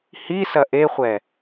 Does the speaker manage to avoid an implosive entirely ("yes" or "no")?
yes